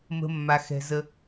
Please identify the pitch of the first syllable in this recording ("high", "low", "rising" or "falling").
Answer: low